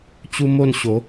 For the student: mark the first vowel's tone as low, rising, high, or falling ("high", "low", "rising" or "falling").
high